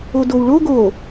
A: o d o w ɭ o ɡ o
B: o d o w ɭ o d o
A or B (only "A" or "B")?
A